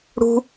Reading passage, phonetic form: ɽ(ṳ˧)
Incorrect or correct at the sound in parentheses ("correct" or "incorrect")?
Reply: correct